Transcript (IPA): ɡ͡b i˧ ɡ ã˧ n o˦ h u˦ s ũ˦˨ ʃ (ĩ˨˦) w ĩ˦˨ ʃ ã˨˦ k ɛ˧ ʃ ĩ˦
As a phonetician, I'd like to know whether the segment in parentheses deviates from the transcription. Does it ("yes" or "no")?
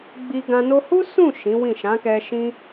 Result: no